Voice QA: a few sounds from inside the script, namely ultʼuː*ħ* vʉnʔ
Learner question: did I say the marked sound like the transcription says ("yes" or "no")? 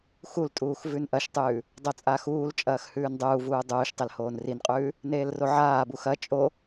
no